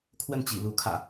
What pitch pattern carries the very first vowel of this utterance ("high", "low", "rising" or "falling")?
falling